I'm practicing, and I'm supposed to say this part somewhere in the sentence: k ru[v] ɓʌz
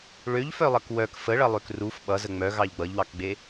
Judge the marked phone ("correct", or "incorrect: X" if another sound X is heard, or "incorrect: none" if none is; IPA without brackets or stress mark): incorrect: f